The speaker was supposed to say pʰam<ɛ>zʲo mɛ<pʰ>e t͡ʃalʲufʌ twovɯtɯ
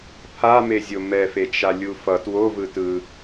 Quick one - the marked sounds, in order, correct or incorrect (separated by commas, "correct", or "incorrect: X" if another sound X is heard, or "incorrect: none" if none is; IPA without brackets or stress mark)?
incorrect: e, incorrect: f